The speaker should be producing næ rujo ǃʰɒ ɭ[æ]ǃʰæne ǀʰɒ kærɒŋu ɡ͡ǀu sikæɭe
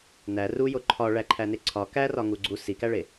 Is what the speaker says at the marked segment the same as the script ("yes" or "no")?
yes